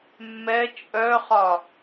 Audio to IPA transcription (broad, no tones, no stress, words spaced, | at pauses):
mːɛ t͡ʃʼœχɒ